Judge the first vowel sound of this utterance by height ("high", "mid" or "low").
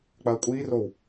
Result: low